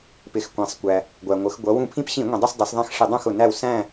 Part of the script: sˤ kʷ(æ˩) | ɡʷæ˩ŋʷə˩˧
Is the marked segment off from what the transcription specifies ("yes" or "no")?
no